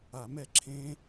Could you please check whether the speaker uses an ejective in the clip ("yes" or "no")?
no